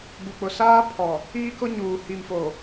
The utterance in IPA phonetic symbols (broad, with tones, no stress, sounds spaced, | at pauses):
ɡ͡b u˨ k͡p ʊ˨ s aː˦ pʰ ɔ˨ | iː˦ k ʊ˦ ɲ uː˨ h i˨ m f o˨